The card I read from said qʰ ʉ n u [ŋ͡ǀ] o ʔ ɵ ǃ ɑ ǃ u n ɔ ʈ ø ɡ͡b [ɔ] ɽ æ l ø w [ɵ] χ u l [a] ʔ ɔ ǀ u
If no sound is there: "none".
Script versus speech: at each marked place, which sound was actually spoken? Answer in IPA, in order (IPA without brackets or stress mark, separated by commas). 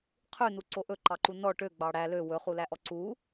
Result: ǀ, ɑ, ɵ, æ